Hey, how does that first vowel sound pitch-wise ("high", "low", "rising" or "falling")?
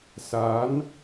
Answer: rising